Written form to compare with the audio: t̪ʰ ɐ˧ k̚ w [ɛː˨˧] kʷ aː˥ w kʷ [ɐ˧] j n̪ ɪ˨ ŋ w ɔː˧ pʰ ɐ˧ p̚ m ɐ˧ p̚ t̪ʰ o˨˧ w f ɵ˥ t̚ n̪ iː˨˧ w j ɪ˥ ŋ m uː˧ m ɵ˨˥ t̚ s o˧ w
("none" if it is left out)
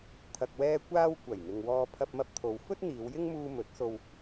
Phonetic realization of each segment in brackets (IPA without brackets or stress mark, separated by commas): ɛː˧, ɐ˨˩